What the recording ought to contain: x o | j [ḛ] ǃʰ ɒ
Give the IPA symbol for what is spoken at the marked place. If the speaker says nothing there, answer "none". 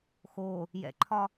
ɛ̰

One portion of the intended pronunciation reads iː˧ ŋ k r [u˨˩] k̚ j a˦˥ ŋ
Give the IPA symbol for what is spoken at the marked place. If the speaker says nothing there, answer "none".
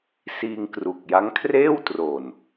u˨˩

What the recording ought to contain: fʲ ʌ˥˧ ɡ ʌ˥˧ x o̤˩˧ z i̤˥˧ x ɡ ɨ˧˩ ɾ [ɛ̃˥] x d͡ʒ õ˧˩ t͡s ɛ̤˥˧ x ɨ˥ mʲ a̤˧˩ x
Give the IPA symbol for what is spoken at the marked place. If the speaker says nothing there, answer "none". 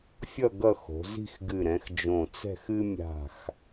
ɛ̃˩˧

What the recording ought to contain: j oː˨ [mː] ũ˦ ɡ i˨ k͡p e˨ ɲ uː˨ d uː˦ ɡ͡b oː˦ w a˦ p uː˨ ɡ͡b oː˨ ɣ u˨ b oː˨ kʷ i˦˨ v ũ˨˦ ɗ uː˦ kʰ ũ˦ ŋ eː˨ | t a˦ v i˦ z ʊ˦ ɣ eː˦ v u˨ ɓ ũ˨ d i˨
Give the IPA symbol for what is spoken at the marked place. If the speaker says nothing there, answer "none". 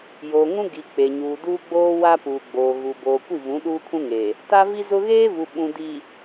ŋ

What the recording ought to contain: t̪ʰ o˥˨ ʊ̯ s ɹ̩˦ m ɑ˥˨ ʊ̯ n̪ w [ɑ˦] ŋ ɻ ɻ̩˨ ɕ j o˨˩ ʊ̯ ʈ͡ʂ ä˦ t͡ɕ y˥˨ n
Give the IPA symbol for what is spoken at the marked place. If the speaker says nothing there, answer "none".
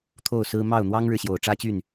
ɑ˦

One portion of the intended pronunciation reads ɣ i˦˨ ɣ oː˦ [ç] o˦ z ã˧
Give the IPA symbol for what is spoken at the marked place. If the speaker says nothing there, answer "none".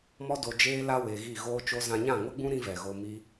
t͡ʃ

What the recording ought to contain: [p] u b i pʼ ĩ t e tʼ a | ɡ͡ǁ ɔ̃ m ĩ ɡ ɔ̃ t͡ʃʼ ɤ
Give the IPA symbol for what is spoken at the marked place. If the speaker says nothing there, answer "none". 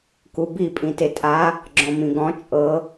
k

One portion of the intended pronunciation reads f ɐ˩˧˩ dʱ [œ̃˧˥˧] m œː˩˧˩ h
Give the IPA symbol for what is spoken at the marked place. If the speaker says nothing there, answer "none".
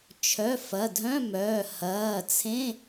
œ̃˧˥˧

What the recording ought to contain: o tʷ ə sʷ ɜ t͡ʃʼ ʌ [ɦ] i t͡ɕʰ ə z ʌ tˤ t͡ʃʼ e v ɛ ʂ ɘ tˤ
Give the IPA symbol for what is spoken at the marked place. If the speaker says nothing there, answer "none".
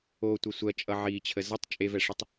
ʕ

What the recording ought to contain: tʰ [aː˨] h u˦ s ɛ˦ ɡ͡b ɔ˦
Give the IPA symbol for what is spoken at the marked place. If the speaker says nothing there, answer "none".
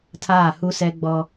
aː˦˨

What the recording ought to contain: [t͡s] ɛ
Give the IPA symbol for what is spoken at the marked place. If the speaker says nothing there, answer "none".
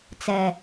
t͡s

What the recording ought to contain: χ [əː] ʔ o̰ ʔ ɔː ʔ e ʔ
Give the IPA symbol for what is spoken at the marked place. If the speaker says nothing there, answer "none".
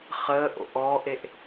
əː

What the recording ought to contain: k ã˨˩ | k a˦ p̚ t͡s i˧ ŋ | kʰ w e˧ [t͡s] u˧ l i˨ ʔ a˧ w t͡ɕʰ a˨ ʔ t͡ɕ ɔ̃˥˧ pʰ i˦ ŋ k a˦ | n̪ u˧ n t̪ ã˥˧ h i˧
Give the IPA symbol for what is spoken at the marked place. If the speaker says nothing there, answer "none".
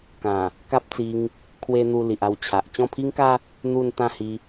n̪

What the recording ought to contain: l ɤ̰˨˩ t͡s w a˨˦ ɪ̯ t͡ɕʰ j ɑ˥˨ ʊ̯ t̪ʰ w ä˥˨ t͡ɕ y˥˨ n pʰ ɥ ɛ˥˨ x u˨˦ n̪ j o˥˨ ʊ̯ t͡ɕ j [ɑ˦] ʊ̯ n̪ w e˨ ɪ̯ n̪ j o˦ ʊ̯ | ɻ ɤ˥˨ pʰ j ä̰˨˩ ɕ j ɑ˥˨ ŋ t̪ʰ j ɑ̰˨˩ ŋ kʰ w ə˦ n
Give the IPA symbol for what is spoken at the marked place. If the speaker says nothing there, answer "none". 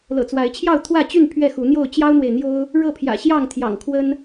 ɑ˦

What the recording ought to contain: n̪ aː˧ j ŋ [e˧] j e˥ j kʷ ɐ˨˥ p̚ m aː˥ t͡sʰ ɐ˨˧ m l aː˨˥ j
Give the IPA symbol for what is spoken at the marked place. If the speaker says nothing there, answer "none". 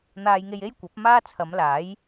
e˧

